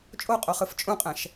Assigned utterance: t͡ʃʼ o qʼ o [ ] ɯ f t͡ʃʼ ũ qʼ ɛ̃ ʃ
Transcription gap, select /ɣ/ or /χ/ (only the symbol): χ